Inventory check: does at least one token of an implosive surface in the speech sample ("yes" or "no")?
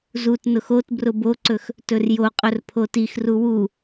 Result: no